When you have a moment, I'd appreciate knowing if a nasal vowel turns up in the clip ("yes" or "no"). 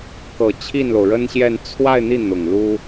no